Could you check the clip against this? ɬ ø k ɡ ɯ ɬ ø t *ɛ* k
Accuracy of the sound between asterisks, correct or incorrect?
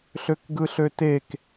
incorrect